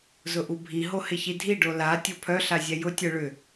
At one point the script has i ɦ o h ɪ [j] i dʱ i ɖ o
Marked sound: incorrect: ç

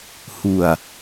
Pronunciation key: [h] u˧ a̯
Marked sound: correct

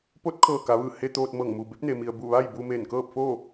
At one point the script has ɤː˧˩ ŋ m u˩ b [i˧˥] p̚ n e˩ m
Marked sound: incorrect: e˧˥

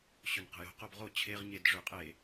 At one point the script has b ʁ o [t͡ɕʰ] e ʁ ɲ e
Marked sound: correct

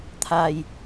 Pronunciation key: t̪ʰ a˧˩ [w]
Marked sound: incorrect: j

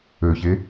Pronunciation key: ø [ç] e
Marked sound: correct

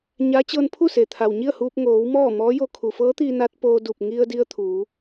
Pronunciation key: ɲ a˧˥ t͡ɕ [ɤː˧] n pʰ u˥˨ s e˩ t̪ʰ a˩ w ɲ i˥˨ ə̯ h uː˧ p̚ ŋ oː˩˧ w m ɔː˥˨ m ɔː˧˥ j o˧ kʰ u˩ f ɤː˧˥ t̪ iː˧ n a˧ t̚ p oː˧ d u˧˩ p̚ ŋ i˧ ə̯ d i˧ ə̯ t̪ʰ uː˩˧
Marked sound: correct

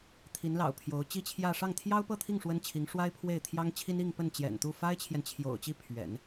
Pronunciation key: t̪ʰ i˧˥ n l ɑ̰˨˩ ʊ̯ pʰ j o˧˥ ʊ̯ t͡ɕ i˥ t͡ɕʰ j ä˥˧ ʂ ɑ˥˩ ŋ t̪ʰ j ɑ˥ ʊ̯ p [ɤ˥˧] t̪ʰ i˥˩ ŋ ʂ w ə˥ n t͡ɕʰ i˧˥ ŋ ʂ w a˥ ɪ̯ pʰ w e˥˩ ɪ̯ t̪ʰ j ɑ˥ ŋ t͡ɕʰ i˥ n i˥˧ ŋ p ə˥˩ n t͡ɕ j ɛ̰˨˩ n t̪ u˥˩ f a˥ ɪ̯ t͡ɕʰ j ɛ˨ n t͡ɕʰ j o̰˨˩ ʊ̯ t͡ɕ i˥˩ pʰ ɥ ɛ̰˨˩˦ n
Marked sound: correct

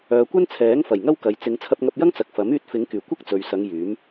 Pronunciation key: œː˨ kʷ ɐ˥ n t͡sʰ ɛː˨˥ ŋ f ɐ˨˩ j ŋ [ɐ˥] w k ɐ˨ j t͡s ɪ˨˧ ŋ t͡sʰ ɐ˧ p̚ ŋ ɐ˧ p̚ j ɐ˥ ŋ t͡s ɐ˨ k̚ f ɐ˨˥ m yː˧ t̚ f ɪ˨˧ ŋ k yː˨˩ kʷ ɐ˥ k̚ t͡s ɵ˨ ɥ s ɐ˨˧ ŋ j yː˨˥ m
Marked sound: correct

